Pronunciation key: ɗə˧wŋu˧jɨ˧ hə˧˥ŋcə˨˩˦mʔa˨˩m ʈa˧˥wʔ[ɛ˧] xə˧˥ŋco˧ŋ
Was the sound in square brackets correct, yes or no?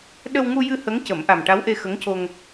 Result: no